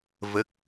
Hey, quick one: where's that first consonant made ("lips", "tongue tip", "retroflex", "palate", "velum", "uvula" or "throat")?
lips